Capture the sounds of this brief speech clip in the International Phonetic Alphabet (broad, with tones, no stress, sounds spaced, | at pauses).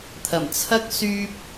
t̪ʰ ɐ˨˩ m t͡sʰ ɐ˥ k̚ s yː˥ p̚